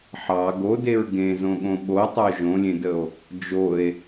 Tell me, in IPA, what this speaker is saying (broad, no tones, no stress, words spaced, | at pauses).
ħɑ ɡodeɹ ɡẽzõɠõ ɓotˤo ʒõlʲẽdəo̯ | d͡ʒoe̯